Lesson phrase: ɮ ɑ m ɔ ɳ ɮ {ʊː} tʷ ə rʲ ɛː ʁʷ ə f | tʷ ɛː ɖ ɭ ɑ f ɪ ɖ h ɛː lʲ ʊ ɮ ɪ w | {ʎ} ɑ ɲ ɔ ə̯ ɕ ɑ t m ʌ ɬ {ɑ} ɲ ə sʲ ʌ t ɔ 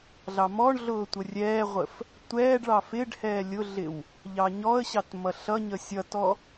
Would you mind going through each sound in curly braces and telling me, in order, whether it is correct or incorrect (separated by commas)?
correct, correct, incorrect